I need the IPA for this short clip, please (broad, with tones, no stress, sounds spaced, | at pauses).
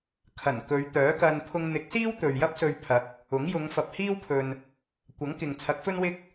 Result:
kʰ ɐ˨˩ n k ɵ˨˧ ɥ t̪ œː˨˥ k ɐ˧ n pʰ ʊ˧ ŋ n̪ ɪ˨˥ k̚ s iː˥ w t̪ ɵ˨ ɥ j ɐ˥ p̚ s ɵ˧ ɥ pʰ ɐ˨˥ k̚ | ʊ˨˥ ŋ j ʊ˨˧ ŋ f ɐ˨ p̚ h iː˥ w pʰ ɵ˨ n | kʷ ɐ˨˥ ŋ k ɪ˨ ŋ t͡sʰ ɐ˨˥ k̚ f ɵ˥ n w ɪ˥ k̚